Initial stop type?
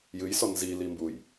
plain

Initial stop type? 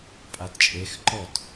ejective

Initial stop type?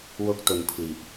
plain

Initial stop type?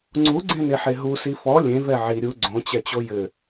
click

